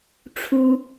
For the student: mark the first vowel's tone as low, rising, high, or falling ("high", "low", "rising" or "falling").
high